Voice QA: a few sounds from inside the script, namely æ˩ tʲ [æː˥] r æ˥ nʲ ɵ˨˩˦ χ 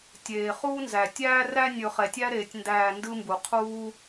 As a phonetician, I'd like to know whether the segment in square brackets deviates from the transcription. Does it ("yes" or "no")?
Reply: no